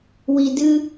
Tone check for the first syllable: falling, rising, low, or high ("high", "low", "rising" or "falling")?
low